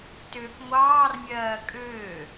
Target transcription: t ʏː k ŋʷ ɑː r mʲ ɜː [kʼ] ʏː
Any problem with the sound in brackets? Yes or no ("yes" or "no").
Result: no